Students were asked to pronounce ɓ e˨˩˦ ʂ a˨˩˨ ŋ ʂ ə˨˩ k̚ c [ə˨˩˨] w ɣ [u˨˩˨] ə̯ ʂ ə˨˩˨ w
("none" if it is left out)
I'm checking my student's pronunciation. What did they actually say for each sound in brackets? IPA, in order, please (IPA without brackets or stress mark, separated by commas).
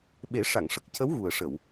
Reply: ə˧˥, u˨˩